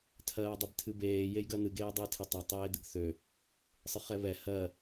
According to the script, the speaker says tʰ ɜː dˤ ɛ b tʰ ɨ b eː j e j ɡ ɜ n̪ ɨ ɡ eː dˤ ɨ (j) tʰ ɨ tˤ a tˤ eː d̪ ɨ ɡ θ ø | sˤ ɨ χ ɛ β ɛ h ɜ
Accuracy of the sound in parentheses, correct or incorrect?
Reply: correct